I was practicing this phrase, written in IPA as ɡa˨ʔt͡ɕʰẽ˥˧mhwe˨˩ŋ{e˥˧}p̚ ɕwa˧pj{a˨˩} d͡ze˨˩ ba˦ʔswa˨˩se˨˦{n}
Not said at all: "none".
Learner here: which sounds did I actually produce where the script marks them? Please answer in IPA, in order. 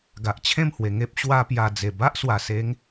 e˦, a˨˩, ŋ

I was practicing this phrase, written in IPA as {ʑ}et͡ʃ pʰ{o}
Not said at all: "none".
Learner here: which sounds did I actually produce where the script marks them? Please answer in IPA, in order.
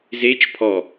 z, ɔ

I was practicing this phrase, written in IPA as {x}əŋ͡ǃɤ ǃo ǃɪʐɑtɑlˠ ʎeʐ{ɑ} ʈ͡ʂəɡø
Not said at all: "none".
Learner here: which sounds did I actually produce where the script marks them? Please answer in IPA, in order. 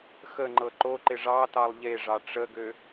x, ɑ

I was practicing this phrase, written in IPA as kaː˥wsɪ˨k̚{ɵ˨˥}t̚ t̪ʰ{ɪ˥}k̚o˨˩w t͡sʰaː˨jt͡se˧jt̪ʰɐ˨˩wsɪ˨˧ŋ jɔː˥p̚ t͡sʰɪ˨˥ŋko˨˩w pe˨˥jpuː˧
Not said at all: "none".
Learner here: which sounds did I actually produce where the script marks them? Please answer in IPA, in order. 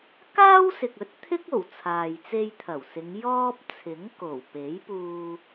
ɵ˨˥, ɪ˥

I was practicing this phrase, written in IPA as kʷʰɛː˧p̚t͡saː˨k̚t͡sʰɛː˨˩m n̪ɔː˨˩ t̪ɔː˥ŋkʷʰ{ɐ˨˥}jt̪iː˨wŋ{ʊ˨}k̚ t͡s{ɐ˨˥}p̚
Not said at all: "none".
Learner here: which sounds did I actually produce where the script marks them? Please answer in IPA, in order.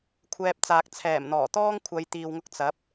ɐ˨˧, ʊ˧, ɐ˨˥

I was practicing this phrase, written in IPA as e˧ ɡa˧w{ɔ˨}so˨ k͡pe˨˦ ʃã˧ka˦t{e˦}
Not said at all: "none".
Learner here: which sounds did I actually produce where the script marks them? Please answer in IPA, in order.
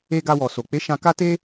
ɔ˨, e˦

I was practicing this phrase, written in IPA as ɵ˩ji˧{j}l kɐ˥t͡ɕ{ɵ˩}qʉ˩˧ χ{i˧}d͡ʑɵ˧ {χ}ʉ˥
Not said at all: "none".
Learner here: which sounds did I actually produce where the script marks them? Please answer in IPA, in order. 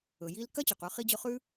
none, ɵ˩, i˧, χ

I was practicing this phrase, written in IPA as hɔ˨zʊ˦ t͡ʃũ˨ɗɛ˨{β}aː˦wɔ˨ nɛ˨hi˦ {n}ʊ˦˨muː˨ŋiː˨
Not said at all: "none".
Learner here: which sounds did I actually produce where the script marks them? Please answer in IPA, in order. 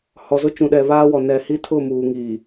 β, tʰ

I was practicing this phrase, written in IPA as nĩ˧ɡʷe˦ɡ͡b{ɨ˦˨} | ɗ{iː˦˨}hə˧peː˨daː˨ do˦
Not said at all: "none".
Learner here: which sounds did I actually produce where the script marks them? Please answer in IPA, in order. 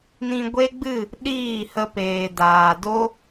ɨ˦˨, iː˦˨

